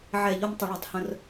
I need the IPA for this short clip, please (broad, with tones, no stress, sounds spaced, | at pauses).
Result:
ʕ ɛ˧˩˧ ʎ o˧ m tˤ ə˧˩˧ ɭ ɛ˧˩˧ tˤ h ə̃˧ r